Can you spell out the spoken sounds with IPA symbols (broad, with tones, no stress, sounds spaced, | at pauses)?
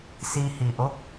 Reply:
s i˧ h i˨ ʔ o˦ k̚